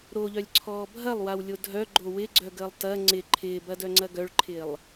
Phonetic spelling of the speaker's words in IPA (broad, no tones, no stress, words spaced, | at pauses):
ɾoʎœlʲǀʰɔː bʱɐlˠwawlʲo dʱœɡ͡ǃo wɪɡ͡ǀœɡəːlˠ tɐ ŋ͡ǀɪ ǃʰɪːbɐdœŋ͡ǀɐ ɡœɭǃʰɪːlˠ